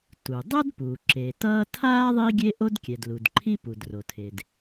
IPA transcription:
t u˩ dˤ ʌ˥ d p u˩ ǁ e˩ t ʌː˥ tʰ aː˥ ðˤ iː˥ ɡʲ e˥ ʔ o˥ d kʲ ɛ˩ d l u˩ d ǃʰ i˥ p u˩ d r o˩ tʰ e˩ d

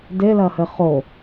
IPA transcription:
d e l ɐ h ɘ χ o

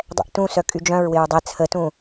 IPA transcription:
dˤ ɛ̰ ʔ t ũ s œ kʼ y d͡ʒ œ̃ ɹ w ɪ ɹ dˤ ɛ t͡sʰ ə t ũ

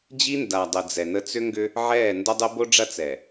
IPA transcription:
d͡ʑ i˦ n d a˨ dˤ ə˨ d͡z ɛ˨ n ə˦ t͡s ʏ˦ ŋ ɡ ʏ˦ | ʕ ɛː˦˨ n d ɐ˦ dˤ ə˦ b o˦ ɖ͡ʐ ɐ˦ t͡s ɛ˨

